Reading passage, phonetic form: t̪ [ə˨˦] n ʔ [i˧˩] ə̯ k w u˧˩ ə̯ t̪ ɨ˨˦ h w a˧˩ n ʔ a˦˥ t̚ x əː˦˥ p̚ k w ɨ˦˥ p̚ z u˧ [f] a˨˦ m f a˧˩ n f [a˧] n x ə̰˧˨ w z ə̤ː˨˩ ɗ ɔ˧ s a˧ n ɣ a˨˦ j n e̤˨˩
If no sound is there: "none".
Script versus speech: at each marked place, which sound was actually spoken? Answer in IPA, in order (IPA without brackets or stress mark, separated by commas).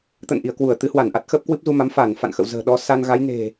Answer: ə̰˧˨, i˧˩, m, a̰˧˨